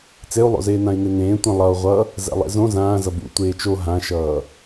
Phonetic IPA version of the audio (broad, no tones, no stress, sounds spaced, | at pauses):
t͡s e u̯ lˠ o̰ z eː n ã i̯ n e n ẽː tʷ ɛ̃ lˠ ʌ u̯ ʁʷ ʌ | z ɛ̰ lˠ ḛ z õ z ãː z ʌ b ṵ tʷ eː t͡ʃ o ɦ ã ʃ ʌː